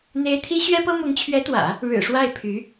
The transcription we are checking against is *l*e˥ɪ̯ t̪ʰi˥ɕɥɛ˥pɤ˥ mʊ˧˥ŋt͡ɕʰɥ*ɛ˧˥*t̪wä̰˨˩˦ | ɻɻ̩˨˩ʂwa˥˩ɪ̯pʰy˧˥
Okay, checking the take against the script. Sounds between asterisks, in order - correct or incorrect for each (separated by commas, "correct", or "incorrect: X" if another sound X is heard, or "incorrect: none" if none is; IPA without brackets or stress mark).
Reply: incorrect: n̪, correct